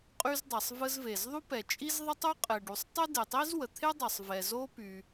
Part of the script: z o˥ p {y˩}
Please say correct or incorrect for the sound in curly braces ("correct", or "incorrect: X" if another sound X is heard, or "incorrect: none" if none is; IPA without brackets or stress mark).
correct